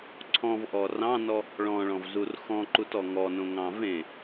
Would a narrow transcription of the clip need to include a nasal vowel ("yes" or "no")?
yes